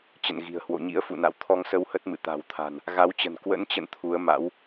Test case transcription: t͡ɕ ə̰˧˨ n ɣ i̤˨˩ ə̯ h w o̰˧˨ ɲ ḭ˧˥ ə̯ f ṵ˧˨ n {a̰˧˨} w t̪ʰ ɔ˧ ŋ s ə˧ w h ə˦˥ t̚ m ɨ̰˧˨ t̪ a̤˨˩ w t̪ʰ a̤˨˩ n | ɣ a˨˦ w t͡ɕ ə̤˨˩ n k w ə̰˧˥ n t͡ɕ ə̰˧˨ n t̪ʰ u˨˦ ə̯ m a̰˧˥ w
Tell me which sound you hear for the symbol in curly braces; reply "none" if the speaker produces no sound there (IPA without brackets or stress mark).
a̰˧˨